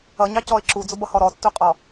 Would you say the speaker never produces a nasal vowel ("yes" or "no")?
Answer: yes